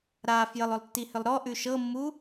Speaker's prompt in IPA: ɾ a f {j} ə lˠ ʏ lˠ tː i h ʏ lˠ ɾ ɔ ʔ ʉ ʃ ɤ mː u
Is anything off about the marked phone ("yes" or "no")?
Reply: no